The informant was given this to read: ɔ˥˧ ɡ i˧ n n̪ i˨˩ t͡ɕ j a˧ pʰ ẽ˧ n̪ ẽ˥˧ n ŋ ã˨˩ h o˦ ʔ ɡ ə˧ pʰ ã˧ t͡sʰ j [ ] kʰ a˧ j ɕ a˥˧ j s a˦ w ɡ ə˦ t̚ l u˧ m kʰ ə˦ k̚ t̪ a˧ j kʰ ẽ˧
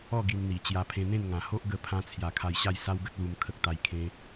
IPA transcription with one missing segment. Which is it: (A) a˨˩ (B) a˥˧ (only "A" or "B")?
A